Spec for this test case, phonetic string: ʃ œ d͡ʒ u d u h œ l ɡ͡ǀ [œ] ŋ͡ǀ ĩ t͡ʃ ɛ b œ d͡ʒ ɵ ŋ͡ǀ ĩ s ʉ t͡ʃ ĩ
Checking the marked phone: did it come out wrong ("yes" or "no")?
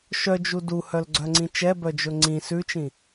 no